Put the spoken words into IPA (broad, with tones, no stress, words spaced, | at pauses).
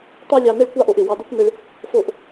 t̪ɑ˥lʲɑ˧ ne˥ɭkʷɑ˥ʔo˧ʔɪ˩ wɑ˧d̪o˥kʷ nɪ˧ɭ | fo˧ʔ